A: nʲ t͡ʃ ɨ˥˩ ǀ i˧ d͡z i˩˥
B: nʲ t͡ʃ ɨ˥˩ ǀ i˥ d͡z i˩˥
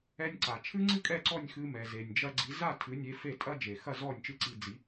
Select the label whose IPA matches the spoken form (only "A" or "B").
A